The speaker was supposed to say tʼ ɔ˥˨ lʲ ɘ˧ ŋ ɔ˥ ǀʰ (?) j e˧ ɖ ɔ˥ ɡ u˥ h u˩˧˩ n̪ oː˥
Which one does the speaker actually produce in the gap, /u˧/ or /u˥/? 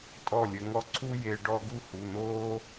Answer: u˥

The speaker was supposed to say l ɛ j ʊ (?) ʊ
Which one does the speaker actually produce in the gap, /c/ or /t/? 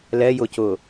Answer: c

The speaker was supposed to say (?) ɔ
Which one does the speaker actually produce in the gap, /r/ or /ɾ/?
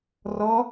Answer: r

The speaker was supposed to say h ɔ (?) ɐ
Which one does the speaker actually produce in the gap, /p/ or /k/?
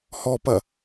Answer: p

